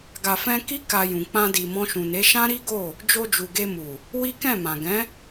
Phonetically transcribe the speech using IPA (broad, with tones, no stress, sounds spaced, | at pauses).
ɡ a˨ f ɛ̃˧ k i˦ k a˧ j ũ˨ k͡p ã˧ d i˨ m ɔ̃˧ ʃ ũ˨ n e˨˦ ʃ ã˦ ɾ i˦ ɡ o˦˨ | d͡ʒ o˧ d͡ʒ u˨ ɡ e˧ m u˨ | w i˦ k ɛ̃˦˨ m ã˨ ɡ ɛ̃˨˦